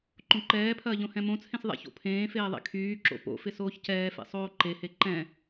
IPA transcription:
ǃ õ ǃ ɛː pʰ ɐː ʎ õ h ɛ̃ m õ t͡sʰ ẽ s ðˤ ɛ̰ ç o̰ pʰ ẽː f eː ðˤ ḛ kʰ yː ǁ o̰ p o̰ f ɪ s oː ç c ɛː f ḛ sˤ oː ǃ e h e ǃ ɛ̃

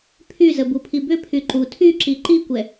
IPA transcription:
pʰ y z ə b u pʰ i b ʏ pʰ y ǃ u tʰ y ǁ i ǃ i kʷ ɛ

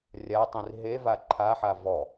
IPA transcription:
rʲ a tˤ ĩ r ɦ e v a ǃʰ a ħ a v ɔ

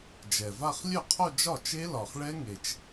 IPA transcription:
d͡ʒ ɛ˨˩ v a˥˧ χ lʲ œ˥˩ qʰ o˥˧ d͡ʒ ɒ˥˩ t͡ʃ e˦˥ l ɒ˨˩ χ ɭ ɛ˦˥ ŋ e˨˩ t͡ʃ

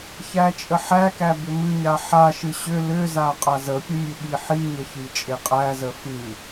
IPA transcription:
ç æ t͡ʃʼ ə ħ æ k æ b ʏ m ɨ ɲ a ħ a ʃ ɨ ɕ ʏ l ʏ z a qʼ a z ə pʲ ə mʲ ɨ ɠ i ħ i ɲ ə ç i t͡ʃʼ e qʼ æ z ə f ɨ

